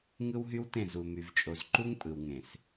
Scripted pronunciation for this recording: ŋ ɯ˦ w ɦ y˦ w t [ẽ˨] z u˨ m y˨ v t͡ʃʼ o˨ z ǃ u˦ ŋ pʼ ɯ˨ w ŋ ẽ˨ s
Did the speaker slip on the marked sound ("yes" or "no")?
yes